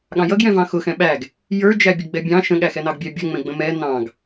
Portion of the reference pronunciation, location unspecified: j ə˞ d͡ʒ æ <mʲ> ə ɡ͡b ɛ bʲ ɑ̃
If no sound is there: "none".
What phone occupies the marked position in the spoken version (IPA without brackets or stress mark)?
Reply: bʲ